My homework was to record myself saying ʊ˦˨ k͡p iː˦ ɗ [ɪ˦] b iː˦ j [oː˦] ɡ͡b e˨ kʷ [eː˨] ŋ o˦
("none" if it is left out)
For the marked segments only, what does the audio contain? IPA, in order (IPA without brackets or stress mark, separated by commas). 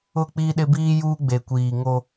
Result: ɪ˦, uː˦, iː˨